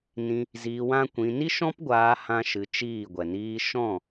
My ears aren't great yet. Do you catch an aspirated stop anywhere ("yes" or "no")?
no